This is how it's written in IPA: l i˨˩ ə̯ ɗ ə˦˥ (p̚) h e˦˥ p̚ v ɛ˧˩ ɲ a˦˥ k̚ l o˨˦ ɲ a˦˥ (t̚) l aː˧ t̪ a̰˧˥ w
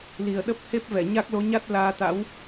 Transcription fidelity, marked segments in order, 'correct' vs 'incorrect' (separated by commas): correct, correct